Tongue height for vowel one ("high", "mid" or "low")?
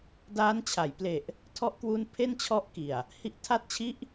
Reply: low